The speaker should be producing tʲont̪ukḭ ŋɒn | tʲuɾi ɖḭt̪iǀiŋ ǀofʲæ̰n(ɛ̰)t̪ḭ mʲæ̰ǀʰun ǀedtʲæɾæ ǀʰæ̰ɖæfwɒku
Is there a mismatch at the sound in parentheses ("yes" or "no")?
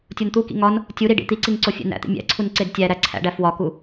yes